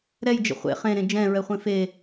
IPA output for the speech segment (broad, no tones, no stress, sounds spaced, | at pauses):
ɾ ɛ j d͡ʒ ə̰ χʷ ḛ χ ẽ ɾ ẽ d͡ʒ ɛ̃ ɹ ɛ χʷ ẽ f e